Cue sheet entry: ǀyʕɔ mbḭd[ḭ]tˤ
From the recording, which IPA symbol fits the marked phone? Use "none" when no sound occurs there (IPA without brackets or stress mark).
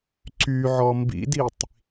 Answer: i